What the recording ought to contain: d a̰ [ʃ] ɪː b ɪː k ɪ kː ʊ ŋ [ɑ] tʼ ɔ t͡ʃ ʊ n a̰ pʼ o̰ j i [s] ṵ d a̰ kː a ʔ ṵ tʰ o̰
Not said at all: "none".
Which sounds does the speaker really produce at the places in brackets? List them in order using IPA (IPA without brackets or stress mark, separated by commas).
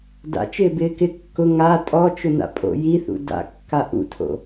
t͡ʃ, a, θ